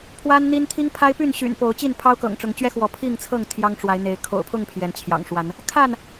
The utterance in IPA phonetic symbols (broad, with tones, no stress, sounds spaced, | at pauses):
pʰ w a˦ n n̪ i˦ n t̪ʰ i˦ ŋ pʰ a˦ ɪ̯ p y˥˨ n ɕ y̰˨˩ n p o˨˦ ʊ̯ t͡ɕ i˥˨ n pʰ ɑ˦ ʊ̯ k ɤ̰˨˩ ŋ ʈ͡ʂ ʊ˨˦ ŋ t͡ɕ ɥ ɛ˦ x w ɔ˨˦ pʰ i˥˨ ŋ t͡sʰ ɤ˥˨ ŋ t̪ʰ j ɑ˦ ŋ ʈ͡ʂ w a˨˦ ɪ̯ n̪ e˨˦ ɪ̯ kʰ o̰˨˩ ʊ̯ pʰ ʊ˥˨ ŋ pʰ j ɛ˨˦ n t͡ɕʰ j ɑ̰˨˩ ŋ ʂ w a˨˦ n | kʰ a˥˨ n